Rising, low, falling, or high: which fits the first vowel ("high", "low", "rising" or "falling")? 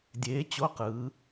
rising